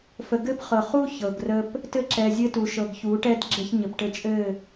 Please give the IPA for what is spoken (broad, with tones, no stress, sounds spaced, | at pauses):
f ə˨ ɡ ɘ˦ p χ ɤ˨ χ u˦ ç ɤ˨ ɡ r ə˦ p | t ɘ˦ ǁ ɛ˨ zʲ ɘ˦ t u˨ ʃ ɤ˨ ɡ ç u˨˦ ʈ ɛ˦ d ɡ͡ǁ ɘ˦ ç ɲ ə˨ p ʈ ɘ˦ t͡ʃʼ ɘ˦˨